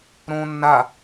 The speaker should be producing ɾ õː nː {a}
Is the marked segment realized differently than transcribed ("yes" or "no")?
no